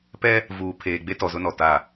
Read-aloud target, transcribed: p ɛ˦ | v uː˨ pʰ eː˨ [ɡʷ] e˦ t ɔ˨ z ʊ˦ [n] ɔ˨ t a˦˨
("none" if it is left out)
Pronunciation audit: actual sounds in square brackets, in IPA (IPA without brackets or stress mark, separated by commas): ɡ͡b, n